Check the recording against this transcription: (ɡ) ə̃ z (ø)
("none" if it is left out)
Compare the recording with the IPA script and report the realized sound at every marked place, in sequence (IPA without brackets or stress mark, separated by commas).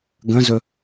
ɡ, ɵ